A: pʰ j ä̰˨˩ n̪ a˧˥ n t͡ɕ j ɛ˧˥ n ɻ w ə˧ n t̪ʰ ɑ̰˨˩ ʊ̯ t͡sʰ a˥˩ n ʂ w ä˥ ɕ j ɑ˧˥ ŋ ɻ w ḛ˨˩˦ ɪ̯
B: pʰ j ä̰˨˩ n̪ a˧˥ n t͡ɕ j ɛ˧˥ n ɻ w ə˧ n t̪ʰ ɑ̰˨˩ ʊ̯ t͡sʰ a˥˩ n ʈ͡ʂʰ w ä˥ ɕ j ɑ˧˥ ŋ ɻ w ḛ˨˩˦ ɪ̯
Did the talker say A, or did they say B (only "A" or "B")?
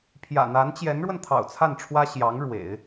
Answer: B